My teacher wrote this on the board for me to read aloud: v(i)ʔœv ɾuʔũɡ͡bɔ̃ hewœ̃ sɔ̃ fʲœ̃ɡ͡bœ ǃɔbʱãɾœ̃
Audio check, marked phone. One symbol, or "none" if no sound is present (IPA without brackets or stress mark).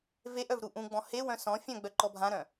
e